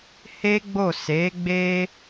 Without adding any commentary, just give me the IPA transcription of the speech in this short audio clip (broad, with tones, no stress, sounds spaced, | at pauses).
h e˦ ɡ͡b o˦˨ s e˨˦ ɡ͡b e˦